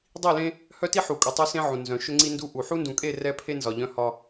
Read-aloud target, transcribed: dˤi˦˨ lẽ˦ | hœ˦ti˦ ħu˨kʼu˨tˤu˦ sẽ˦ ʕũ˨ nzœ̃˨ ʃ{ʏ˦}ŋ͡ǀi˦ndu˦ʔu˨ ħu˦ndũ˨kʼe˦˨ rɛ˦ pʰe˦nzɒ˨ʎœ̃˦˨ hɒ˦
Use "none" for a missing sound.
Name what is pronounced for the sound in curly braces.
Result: ʏ˦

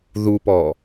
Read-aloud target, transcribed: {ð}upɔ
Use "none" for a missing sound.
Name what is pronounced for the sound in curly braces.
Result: ð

